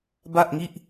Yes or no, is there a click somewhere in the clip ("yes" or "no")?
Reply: no